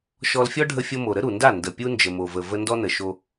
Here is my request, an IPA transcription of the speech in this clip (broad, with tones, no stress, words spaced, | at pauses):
ʃɔ˧lfʲɔ˦ ɖʱə˧fʲo˧mo˨ɾə˦ ɾu˨nda˦˨ ndə˨pʲu˧ nd͡ʒə˨mo˨və˨və˧ ndɔ˧nə˨ ʃo˧